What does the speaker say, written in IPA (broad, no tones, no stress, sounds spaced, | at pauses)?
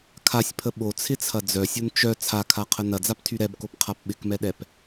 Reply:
kʰ a sʲ pʰ ə ɓ o t͡sʰ ɪ t͡sʰ ɐ d͡z œ sʲ o n t͡ʃ œ t͡sʰ a kʰ a qʰ ə n ɐ d͡z a p tʰ y ɾ ɛ b k o p qʰ a p ɓ ɪ k m ɛ ɗ ɛ p